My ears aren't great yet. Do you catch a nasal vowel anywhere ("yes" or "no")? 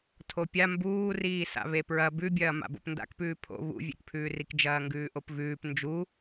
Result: no